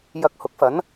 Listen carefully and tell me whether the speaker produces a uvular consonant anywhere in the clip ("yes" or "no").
no